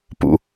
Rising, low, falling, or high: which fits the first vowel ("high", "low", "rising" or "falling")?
low